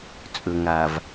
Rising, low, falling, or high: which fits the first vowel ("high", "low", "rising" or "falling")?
low